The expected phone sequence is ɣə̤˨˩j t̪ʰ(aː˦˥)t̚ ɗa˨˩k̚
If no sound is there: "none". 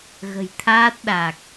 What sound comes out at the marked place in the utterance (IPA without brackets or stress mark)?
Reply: aː˦˥